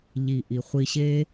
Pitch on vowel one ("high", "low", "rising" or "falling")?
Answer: low